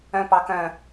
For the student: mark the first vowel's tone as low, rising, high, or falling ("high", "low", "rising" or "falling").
low